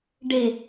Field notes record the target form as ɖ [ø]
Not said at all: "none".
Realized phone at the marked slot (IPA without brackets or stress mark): e